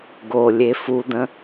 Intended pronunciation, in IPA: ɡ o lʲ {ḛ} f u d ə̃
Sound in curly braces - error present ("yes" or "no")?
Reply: yes